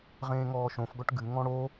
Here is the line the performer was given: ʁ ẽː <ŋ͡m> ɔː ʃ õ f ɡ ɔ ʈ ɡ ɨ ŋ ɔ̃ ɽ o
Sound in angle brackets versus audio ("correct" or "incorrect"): incorrect